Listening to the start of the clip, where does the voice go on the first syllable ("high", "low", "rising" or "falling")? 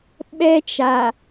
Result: high